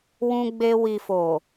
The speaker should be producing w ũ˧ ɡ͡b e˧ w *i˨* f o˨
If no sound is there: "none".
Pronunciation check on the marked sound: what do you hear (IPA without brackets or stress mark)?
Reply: i˨